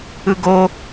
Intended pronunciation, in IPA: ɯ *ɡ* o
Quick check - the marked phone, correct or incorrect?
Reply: correct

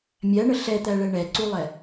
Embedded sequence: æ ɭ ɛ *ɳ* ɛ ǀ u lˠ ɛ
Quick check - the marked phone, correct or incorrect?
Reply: correct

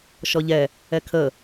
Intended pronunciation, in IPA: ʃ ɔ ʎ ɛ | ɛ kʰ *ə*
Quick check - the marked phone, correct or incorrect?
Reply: correct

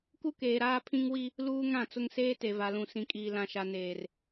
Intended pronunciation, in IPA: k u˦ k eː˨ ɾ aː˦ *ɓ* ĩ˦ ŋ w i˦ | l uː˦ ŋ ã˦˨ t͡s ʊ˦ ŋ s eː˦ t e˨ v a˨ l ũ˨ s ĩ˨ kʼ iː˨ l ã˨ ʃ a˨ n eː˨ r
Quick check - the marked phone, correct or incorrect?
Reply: incorrect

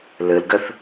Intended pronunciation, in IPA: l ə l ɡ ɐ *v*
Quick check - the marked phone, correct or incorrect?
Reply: incorrect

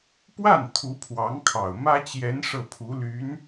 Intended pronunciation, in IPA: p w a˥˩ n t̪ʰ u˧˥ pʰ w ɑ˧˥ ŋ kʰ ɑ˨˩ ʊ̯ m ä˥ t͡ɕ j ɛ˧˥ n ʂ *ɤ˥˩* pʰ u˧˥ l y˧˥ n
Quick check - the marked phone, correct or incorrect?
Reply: correct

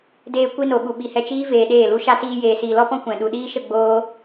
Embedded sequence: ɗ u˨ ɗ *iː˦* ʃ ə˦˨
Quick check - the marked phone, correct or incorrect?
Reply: correct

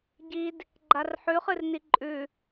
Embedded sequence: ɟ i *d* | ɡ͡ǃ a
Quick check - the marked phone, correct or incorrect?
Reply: correct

